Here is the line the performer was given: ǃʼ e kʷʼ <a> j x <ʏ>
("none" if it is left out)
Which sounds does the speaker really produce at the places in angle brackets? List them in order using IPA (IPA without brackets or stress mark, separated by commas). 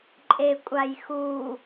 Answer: a, u